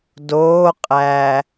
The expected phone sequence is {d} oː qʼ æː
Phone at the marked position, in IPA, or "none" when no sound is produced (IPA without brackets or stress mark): d